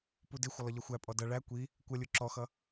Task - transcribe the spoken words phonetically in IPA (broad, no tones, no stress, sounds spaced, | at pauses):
p u d ɪ xʷ ə lˠ ə ʎ ʌ xʷ æ pʼ ɔ d ʌ ɭ æ kʷ i | kʷ ʌ lʲ u ǁ ɔ x ʌ